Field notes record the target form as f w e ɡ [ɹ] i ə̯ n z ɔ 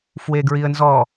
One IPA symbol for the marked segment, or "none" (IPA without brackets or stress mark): ɹ